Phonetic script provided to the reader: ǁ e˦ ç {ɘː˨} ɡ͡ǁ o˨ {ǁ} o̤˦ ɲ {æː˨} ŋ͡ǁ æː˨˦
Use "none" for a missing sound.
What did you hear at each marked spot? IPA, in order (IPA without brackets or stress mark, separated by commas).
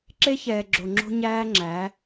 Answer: ɛː˨, ŋ͡ǁ, æː˦